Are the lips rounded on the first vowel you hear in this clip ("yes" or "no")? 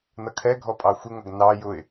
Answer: no